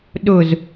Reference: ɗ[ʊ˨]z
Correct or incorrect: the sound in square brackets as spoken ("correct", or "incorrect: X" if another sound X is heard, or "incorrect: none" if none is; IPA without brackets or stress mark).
correct